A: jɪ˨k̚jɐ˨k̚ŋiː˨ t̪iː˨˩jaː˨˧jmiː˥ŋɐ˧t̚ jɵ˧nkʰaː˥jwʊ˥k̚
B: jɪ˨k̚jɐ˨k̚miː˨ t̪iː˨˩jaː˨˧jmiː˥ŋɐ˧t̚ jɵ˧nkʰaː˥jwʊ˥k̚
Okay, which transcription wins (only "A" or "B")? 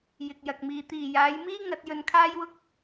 B